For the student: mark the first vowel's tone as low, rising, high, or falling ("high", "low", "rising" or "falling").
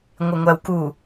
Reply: low